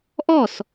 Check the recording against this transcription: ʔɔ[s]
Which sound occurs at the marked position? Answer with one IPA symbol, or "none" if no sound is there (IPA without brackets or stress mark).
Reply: s